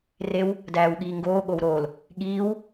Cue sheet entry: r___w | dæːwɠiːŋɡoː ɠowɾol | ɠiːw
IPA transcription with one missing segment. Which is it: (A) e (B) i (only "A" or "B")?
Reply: A